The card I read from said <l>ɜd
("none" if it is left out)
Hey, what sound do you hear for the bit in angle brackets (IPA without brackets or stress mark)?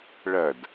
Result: ɭ